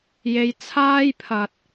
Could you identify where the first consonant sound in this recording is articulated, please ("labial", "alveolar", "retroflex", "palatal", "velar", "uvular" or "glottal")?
palatal